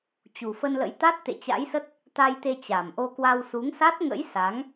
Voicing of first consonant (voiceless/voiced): voiceless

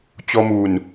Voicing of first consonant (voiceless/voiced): voiceless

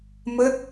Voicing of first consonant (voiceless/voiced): voiced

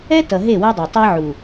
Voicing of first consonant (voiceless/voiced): voiceless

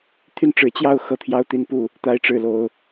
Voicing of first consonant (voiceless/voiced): voiceless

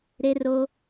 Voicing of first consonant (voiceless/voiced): voiced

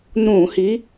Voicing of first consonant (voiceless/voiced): voiced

